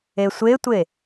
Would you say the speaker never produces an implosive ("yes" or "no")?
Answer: yes